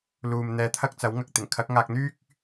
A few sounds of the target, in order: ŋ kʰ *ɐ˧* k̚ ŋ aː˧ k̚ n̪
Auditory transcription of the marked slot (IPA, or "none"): ɐ˨˥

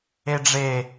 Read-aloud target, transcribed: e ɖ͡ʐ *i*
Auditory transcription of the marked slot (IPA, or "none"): e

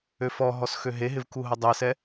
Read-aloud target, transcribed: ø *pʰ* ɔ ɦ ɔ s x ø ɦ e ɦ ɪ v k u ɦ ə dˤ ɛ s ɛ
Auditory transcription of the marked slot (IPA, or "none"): f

